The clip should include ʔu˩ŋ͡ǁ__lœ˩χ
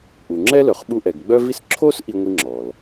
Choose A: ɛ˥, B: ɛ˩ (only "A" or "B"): A